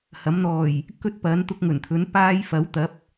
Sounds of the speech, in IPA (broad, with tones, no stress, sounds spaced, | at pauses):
h ɐ˨˥ m n̪ ɔː˨˩ j | k ɵ˥ t̚ p ɐ˨˥ n t̪ ʊ˧ k̚ ŋ ɵ˨˩ n t̪ʰ ɵ˨˥ n p aː˥ j f ɐ˨˥ w t̪ ɐ˨˥ p̚